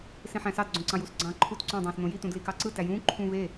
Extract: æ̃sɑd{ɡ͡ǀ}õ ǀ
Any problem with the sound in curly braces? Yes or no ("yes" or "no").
no